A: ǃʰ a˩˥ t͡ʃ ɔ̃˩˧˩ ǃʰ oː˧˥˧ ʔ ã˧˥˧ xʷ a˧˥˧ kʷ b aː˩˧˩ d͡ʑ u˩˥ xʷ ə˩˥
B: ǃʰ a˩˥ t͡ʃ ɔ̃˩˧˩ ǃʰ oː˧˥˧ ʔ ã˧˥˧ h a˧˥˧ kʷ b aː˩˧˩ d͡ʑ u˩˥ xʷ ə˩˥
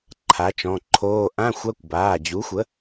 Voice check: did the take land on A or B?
A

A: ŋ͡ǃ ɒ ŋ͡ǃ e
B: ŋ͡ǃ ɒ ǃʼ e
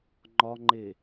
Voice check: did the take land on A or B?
A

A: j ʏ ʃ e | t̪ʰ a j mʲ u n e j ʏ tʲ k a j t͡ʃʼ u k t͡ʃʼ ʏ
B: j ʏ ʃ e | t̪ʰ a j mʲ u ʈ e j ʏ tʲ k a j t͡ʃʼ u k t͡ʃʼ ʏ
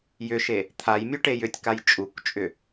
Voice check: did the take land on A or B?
B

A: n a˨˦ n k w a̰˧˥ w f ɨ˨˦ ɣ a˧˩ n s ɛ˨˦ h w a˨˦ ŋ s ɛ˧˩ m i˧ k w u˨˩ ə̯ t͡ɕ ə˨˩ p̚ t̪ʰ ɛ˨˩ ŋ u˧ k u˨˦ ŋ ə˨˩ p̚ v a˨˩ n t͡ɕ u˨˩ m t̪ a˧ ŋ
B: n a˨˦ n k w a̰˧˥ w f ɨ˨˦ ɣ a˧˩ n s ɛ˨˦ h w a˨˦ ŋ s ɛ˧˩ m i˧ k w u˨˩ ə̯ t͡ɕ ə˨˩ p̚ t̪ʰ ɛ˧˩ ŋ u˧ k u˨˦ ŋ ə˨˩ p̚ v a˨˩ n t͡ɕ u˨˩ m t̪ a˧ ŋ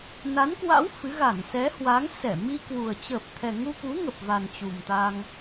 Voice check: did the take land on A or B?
A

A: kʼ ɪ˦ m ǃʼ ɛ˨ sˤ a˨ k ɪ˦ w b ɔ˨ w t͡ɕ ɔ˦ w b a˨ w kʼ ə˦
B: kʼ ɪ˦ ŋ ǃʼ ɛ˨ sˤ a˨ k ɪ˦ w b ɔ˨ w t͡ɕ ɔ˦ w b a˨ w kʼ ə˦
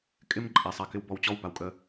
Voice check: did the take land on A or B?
A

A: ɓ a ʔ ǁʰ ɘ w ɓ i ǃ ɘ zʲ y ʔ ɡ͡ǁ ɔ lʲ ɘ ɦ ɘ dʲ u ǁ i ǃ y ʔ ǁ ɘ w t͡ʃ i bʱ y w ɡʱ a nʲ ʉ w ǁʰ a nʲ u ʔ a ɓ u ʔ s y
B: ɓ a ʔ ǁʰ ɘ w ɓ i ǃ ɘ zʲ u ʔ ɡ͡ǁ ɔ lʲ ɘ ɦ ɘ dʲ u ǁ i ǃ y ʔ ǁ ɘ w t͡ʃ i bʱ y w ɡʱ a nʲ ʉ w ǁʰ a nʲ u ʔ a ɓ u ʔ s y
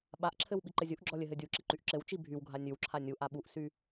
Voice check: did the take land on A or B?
B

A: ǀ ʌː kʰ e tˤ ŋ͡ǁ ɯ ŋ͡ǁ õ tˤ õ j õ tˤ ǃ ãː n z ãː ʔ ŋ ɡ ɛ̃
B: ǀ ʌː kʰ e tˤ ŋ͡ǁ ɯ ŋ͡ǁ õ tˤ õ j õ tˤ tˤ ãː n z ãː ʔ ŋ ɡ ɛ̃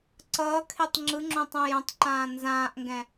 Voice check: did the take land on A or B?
A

